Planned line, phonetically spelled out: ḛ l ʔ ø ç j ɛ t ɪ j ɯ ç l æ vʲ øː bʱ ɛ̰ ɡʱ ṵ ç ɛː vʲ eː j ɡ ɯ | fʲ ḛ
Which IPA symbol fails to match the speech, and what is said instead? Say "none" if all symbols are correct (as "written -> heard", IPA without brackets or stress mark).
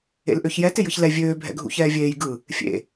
æ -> ɛ